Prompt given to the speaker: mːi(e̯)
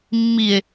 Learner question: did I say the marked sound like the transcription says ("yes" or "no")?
yes